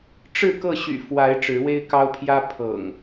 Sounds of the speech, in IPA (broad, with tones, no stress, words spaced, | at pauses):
ʈ͡ʂɻ̩˥˨kɤ˥˨ ɕy̰˨˩ fwa˨˦ɪ̯ ʈ͡ʂɻ̩˨˦we˦ɪ̯kɑ˦ʊ̯pʰjä˦ pʰɤ̰˨˩ŋ